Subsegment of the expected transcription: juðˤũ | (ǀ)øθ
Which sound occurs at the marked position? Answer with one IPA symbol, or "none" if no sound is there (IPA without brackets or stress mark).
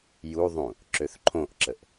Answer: ǁ